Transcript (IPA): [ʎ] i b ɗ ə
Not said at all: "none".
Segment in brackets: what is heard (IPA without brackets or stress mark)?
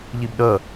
ʎ